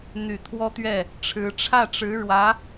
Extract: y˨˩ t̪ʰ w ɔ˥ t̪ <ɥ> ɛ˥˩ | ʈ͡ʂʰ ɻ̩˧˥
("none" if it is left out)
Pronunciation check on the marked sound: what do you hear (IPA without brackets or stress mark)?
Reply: ɥ